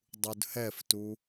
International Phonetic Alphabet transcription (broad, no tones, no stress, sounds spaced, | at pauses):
dˤ u d h ɛ f t u